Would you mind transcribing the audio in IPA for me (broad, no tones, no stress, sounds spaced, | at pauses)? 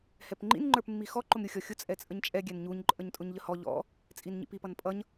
h ɛ p ŋ͡ǃ ḭ n ŋ͡ǃ ə˞ p mː i x ɔ ǃ ʊ m ɾʲ u xʲ ɔ xʲ ʊ t͡sʼ ɛ t͡sʼ ə ɲ t͡ʃʼ ɛ ɡʲ ɛ n ɲ u ɲ ǃʼ ə ɲ tʼ ʊ ɲ ʎ ə h ɔ ʎ ɔ̰ | t͡sʼ i n ɲ ḭ p i p ʌ n pʼ ʌ ɲ